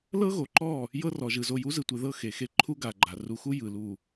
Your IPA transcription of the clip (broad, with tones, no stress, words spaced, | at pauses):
lɤ˦ɣo˨ǃɔ˦˨ | jɤ˦rɔ˨ʒɯ˨ zo˨ju˨˦zɯ˨tʷe˨ ðɤ˦xe˨xe˦ ǃʰu˦ɡa˨ ɡ͡ǃa˨ ru˨xu˦ jɯ˨lu˨